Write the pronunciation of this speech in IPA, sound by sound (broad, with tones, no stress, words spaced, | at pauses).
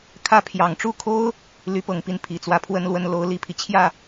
kʰä˥˩pʰjɑ˨˩ŋ ʈ͡ʂu˥˩kʰo˥ʊ̯ | ly˧˥pɤ˨˩ŋpi˥˩n pʰi˨˩t͡swä˧˥pʰwə˥nlwə˥n lo˧˥ʊ̯li˨˩pʰi˦ t͡ɕʰjä˥˩